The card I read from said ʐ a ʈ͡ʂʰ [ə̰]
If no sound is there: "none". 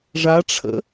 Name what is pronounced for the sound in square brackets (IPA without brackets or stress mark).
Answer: ə̰